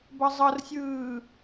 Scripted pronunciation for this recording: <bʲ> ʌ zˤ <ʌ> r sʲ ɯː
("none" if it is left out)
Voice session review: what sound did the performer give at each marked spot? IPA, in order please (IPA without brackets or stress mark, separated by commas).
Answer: b, ʌ